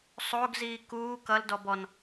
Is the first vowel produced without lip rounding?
no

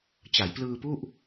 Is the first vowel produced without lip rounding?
yes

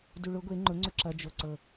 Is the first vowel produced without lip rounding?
no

